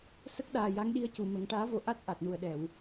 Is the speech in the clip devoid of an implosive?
no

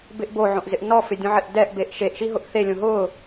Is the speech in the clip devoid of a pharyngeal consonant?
no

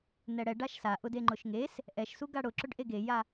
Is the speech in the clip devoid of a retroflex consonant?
no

